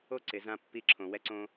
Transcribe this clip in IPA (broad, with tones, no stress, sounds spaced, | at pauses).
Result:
o˥ ǀ ɪ˩ z ã˧ pː i˧ ǁʰ õ˩ w ɛ˧ ǀ õ˧